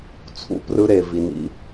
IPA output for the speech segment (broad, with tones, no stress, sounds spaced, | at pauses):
t͡sʰ ṵ˦ p r ɯ˦ ɾ e˨ v i˨ n ḭ˧